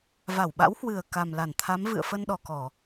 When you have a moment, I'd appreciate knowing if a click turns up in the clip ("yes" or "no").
no